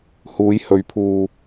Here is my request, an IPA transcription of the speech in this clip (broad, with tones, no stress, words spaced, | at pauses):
huː˨˧jhɵ˨˧ɥpʰuː˧